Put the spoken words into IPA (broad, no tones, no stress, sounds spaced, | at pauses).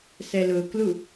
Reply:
s ɛ l ʊː k l u